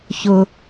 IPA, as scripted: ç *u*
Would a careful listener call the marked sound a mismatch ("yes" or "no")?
yes